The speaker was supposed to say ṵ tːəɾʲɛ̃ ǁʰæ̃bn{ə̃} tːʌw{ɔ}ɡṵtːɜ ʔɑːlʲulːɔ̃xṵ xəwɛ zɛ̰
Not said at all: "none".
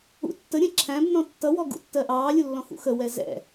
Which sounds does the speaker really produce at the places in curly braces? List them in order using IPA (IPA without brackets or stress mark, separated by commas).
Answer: ɔ̃, ɔ